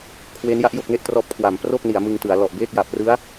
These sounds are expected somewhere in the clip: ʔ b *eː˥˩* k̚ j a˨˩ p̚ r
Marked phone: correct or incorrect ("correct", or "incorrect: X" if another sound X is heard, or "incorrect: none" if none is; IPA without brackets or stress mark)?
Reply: correct